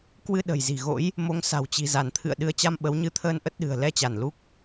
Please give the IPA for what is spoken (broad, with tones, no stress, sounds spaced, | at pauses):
k w ɨ˧ ɗ ə̤˨˩ j z i̤˨˩ ɣ o̰˧˥ j | m o˨˦ ŋ s a̤˨˩ w t͡ɕ i̤˨˩ z a˧˩ n t̪ʰ ɨ̰˧˨ ə̯ ɗ ɨ˨˦ ə̯ t͡ɕ a˧ m ɓ ə˨˦ w ɲ ɨ˧ t̪ʰ əː˧ n ʔ ə˦˥ t̚ ɗ ɨ̤˨˩ ə̯ l ɛ˧ t͡ɕ a˧˩ n l u˦˥ k̚